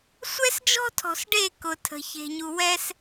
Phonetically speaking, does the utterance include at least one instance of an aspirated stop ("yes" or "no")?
yes